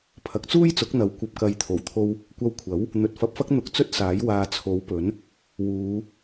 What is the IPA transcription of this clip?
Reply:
pʰɐ˨˥k̚t͡suː˥jt͡sʊ˨˥k̚n̪ɐ˨˥w kʷɐ˨p̚kɐ˨˧jt̪ʰo˨˩w t̪ʰo˥w | kʷɐ˧wkʷʰɐ˨˥w | n̪ɵ˨t̚fɐ˧p̚fɐ˥k̚ n̪ʊ˧k̚t͡sɵ˥t̚ saː˨˥j waː˨ t͡sʰo˨˥wpɵ˨˥n | wuː˨˧

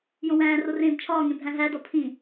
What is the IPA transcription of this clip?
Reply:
jõwæ̃ːro rẽːbt͡ʃʰɒːŋẽ bʱæ̃ɦædɒ pʰĩ

